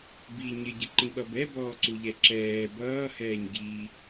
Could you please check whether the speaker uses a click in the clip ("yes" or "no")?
yes